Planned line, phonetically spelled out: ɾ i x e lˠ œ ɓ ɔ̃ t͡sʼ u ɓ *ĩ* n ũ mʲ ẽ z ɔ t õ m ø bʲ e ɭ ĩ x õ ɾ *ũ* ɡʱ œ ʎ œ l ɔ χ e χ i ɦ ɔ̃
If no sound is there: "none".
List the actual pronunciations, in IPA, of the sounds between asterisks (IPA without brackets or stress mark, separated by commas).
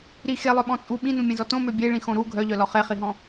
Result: ĩ, u